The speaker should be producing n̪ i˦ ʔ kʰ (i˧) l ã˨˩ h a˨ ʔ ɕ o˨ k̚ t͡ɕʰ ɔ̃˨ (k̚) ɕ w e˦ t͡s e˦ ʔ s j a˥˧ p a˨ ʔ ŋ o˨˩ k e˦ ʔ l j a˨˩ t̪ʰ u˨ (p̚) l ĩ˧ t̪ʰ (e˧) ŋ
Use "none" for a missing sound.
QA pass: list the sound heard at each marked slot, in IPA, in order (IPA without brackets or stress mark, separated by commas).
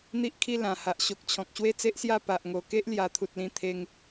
i˥˧, k̚, t̚, e˧